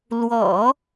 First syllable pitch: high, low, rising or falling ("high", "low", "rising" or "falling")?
low